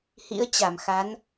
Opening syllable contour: rising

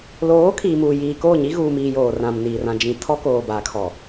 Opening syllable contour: rising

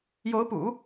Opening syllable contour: rising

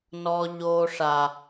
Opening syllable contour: high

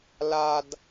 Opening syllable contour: high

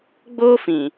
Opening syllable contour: high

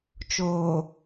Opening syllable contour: low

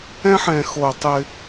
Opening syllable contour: high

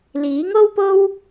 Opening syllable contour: rising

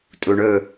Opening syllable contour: low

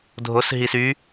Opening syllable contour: rising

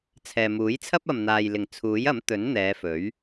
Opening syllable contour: low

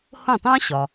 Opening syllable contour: falling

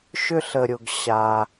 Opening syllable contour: high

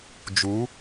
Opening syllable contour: rising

